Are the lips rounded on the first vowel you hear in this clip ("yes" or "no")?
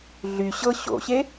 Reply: yes